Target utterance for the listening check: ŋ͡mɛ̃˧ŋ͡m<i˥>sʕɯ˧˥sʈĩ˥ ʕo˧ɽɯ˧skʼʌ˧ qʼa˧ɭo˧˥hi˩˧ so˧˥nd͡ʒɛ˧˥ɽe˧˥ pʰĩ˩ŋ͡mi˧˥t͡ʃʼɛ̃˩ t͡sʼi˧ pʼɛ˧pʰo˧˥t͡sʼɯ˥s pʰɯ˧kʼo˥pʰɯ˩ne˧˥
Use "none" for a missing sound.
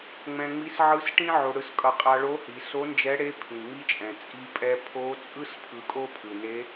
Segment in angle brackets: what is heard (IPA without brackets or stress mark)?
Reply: i˧˥